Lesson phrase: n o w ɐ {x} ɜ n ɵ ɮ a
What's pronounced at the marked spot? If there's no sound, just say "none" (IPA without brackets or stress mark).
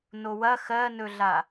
x